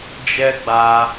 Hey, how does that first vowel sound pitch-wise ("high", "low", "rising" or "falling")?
high